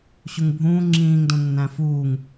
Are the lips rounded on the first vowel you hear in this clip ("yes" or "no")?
yes